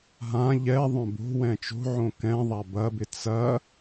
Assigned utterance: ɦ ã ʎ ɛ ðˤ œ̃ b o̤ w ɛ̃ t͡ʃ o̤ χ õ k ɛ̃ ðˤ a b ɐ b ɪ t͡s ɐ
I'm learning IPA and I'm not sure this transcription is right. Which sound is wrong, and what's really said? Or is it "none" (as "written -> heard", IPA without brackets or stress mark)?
χ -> ʕ